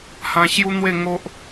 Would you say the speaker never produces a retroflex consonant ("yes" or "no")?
yes